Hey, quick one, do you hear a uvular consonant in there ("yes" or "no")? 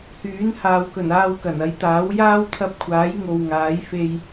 no